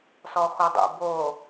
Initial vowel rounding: rounded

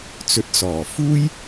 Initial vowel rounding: rounded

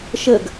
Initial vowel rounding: unrounded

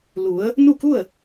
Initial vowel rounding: rounded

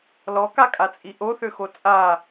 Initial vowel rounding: rounded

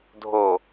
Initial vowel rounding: rounded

